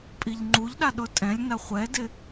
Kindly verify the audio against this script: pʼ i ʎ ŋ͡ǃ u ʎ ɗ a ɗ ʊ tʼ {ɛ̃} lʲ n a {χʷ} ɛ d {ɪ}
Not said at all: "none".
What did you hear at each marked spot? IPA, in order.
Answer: ɛ̃, χʷ, ɪ

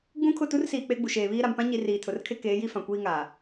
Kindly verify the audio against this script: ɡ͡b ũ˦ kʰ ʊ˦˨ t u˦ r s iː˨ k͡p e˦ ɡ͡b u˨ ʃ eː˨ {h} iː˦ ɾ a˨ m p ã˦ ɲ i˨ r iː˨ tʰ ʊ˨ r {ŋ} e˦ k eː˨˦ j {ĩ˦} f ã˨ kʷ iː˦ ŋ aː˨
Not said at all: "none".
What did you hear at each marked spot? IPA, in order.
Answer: β, kʰ, i˦

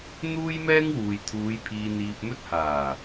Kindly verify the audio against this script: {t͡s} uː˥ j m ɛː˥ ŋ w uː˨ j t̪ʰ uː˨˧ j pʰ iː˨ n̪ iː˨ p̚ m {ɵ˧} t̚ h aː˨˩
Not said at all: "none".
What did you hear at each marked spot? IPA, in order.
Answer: n̪, ɵ˧

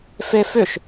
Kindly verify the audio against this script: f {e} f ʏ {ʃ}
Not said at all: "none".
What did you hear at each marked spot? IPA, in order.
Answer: e, ʃ

